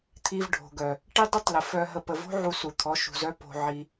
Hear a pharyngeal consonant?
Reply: yes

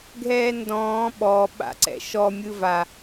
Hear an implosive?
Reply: yes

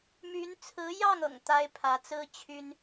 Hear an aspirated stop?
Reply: yes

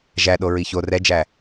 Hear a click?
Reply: no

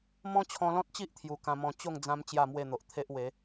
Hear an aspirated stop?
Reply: yes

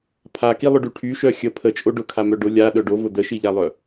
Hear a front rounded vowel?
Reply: yes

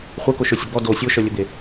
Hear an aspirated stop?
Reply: no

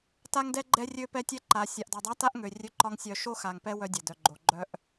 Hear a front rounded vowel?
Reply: yes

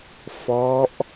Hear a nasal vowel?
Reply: no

